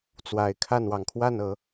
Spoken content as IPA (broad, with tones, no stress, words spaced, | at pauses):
t͡swa˨˩ɪ̯kʰa˥˨n wɑ˨˩ŋkʰwa˥˨nɤ˨˦